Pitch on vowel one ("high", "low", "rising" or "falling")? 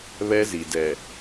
high